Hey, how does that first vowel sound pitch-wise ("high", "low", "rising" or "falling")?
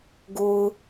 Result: low